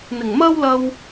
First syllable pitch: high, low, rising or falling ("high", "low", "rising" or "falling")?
low